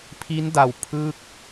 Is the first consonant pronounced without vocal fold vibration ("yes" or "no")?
yes